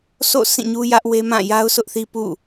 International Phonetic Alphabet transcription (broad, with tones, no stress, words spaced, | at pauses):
sʰo̰˦˨ sĩ˦˨ɲu˦jä˦ʔ we˦mã˦˨ ja˦ʊ̯sʊ˦ʔθi˦ pṵ˦˨